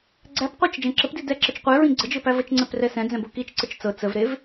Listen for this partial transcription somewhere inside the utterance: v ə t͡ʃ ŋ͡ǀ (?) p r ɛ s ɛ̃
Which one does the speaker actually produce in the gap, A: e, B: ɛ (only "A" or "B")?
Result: B